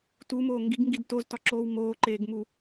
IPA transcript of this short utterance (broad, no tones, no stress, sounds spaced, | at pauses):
t u m oː ŋ ɡ i ɡ ŋ ɡ i d t o z t ɒ ǁ oː w m oː ǃ eː ɡ m u